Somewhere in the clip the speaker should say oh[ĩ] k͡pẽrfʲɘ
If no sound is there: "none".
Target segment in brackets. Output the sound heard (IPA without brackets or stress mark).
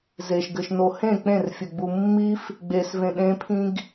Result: ẽ